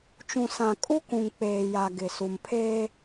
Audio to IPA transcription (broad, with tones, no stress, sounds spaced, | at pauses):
t͡ʃ ũ˨ s ã˨ kʼ u˦ k ũ˨ ŋ k͡p eː˨ j a˨ ɡ ɪ˨ s u˨ m pʰ eː˦